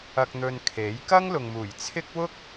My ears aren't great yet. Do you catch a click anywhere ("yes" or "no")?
no